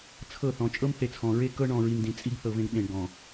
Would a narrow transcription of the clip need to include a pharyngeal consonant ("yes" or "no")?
no